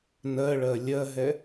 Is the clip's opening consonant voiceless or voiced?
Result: voiced